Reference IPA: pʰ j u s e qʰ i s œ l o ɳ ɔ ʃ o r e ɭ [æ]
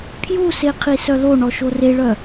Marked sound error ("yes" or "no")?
yes